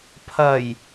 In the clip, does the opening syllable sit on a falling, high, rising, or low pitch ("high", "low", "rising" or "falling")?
low